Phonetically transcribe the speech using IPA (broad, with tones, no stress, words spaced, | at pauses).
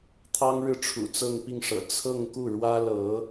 t̪ʰɑ˥ŋɻɻ̩˥˩ʈ͡ʂʰṵ˨˩ t͡sɤ˥˧ŋpi˥˩ŋʂɤ̰˨˩ t͡sʰɤ˥˧ŋ ku˥˩ɻwä˥lɤ˧˥